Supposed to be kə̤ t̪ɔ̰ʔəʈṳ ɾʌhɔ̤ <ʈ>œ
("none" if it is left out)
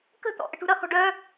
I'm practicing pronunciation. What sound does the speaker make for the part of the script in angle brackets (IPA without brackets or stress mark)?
ɖ